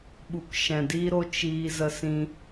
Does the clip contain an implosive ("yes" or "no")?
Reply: yes